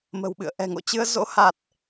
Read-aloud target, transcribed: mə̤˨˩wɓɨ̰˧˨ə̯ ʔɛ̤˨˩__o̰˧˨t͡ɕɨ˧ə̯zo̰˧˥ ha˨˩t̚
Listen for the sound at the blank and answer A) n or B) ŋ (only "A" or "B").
B